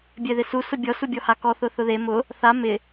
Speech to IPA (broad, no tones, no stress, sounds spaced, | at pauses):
bʲ ɛ ð ɪ s u s ʊ bʲ ɔ s u bʲ ɔ h a k ɔ θ ʊ θ ʊ ð e m ʊ | θ a m ɪ